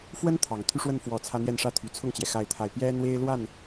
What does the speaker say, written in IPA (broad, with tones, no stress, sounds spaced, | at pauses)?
f w ə˥ n t̪ʰ ɑ˨˩ ŋ t̪ʰ y˥˧ ʂ w ə˥˩ n f w ɔ˨˩ t͡sʰ ä˥ n̪ j ɛ˥˧ n ʂ ä˥˩ t̪ʰ y˨˩ t͡sʰ ʊ˥˩ ŋ t͡ɕ j ɛ˩ x a˥˧ ɪ̯ t̪ʰ a˥˩ ɪ̯ p j ɛ˥ n̪ w e˥ ɪ̯ l w a˥˩ n